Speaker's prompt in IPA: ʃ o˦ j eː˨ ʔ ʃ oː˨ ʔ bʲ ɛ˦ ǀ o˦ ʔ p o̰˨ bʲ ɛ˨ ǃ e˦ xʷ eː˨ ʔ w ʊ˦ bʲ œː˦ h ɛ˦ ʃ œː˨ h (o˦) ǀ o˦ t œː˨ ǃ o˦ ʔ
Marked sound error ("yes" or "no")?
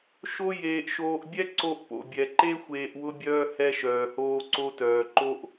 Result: yes